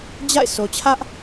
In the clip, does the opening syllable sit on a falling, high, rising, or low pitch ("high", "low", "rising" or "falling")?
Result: falling